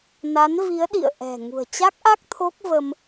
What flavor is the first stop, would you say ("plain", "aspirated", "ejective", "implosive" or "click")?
implosive